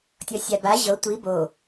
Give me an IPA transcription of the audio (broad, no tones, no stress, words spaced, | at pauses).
tʲɔsʲaba ʑɤ tʷi bo